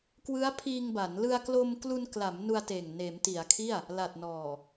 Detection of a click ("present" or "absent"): absent